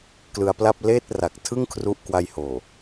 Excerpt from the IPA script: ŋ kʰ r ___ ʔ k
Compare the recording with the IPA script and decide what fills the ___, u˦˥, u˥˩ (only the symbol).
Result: u˦˥